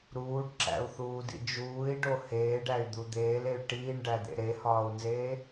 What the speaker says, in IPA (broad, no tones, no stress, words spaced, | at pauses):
ɾuːɖǁæ̰u̯θuːdḭ d͡ʒuːi̯ɖo heːɖæy̯d̪u d̪eːley̯ ʈiːɳɖæd̪ḛ ɾehɒːu̯nzeː